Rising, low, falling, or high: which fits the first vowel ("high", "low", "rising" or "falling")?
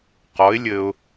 rising